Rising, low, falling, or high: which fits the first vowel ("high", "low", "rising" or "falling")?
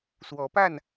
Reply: rising